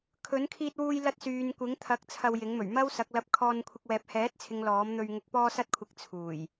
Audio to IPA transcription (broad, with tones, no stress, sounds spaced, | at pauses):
kʰ ɵ˨˥ n kʰ iː˧ t̚ w uː˧ j l ɐ˧ t̚ s yː˨ n kʷ ɪ˨˥ ŋ t̪ʰ ɐ˨˥ k̚ t͡sʰ ɐ˧ w j ɪ˨˥ ŋ m ɵ˨˩ ɥ m ɐ˥ w s ɐ˨˥ k̚ l ɐ˧ p̚ kʰ ɔː˧ n kʷʰ ɪ˧ k̚ w ɛː˨ p̚ h ɛː˨˥ t̚ t͡sʰ ɪ˨ ŋ l ɔː˨˥ m n̪ ɵ˧ ɥ ŋ ʊ˧ k̚ p ɔː˧ s ɐ˧ t̚ kʷʰ ɪ˨ k̚ t͡sʰ uː˨˩ j